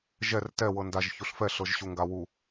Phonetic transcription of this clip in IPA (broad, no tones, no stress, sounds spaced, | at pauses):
ʒ ɛ r t ɛ w ɤ n d a ʒ ç u ɬ f ɛ ɬ ɤ ʒ ɕ u ŋ ɡ a w u